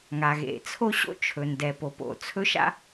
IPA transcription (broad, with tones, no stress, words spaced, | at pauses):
ŋa˩ɣḛ˩t͡sʰo˥ ɕo̰˥t͡ʃʰɵ˩ndɛ˩po˩ po̰˩t͡sʰɵ˥ʃa̰˥